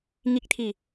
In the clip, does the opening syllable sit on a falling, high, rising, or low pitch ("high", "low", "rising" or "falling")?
rising